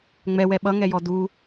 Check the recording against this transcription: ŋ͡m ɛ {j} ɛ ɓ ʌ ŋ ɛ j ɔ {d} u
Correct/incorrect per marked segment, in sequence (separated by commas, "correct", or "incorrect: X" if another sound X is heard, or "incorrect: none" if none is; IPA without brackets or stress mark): incorrect: w, correct